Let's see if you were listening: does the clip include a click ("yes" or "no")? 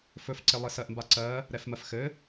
yes